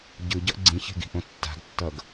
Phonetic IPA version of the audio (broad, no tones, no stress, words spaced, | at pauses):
ɟɯɟʌʔ ɡ͡ǀĩçe̤ɡi̤ʔõ tːa̤ɡtːʌɡ